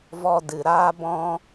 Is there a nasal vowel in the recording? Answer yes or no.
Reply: yes